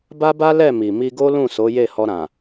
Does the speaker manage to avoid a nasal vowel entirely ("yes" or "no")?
no